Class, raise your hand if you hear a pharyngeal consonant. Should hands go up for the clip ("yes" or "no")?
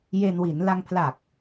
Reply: no